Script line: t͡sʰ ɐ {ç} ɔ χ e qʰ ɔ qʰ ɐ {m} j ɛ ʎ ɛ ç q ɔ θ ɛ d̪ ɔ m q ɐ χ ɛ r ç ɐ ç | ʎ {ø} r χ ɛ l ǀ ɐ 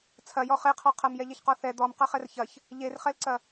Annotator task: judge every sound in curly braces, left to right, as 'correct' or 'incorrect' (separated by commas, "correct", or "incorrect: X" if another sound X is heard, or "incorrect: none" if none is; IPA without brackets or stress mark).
incorrect: j, correct, incorrect: e